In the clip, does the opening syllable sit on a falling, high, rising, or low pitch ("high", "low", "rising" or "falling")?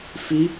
high